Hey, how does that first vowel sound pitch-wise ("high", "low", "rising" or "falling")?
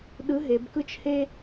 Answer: rising